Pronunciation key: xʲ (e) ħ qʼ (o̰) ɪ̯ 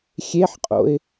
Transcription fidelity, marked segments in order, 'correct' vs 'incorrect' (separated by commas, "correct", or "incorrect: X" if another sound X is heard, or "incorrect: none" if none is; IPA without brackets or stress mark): correct, correct